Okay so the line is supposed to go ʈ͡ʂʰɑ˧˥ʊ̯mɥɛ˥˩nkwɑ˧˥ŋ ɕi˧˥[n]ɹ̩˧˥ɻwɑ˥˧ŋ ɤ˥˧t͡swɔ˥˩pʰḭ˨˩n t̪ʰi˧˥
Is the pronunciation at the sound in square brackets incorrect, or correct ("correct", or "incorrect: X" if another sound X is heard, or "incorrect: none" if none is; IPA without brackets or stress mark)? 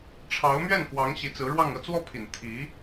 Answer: incorrect: t͡s